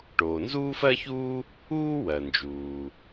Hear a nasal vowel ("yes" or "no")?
no